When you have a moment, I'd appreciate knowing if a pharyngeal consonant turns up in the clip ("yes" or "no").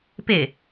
no